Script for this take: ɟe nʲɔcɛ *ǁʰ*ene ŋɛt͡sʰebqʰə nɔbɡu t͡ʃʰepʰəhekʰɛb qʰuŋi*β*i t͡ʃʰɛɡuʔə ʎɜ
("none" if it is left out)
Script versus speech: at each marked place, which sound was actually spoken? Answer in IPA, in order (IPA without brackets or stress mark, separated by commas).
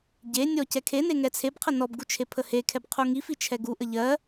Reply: kʰ, f